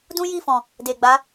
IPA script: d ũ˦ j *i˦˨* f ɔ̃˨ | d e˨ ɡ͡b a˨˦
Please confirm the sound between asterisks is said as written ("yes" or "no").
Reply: yes